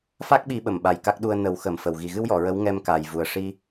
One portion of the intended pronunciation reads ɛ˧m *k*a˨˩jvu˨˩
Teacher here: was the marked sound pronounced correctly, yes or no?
yes